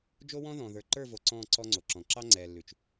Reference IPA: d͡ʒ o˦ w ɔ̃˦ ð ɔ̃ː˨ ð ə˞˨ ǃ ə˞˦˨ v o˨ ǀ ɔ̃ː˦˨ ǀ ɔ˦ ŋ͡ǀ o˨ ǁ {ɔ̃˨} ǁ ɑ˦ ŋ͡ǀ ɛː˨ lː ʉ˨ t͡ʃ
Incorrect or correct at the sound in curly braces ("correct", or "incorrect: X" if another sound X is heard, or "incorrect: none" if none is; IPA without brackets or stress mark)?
correct